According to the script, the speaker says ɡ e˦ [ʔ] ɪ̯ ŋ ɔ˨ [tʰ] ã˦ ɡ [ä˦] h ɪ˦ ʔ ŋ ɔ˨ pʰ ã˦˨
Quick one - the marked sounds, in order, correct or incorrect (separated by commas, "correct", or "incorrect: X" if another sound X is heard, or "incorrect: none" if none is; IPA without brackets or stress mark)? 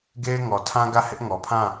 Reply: incorrect: none, correct, incorrect: ä˦˨